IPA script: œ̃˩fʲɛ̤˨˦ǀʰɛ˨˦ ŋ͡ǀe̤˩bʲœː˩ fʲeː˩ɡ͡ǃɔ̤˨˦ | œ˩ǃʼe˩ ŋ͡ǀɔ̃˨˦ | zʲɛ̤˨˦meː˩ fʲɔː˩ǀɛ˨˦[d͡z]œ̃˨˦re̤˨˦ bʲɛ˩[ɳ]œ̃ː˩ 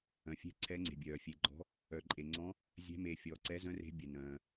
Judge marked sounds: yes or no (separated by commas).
no, no